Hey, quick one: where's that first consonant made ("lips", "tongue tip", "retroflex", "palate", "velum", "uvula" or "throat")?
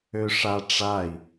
retroflex